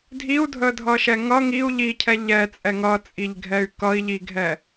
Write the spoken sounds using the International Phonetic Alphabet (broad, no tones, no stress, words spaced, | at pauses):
dʱiu̯dʱədʱʌʃɛ ŋʌ ŋiu̯ ʎicʰɛ ʎɛt͡sʼɛ ŋʌt͡sʼiʎɡʱɛy̯ kʌi̯ʎiɡʱɛ